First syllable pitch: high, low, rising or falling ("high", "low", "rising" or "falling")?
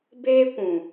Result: high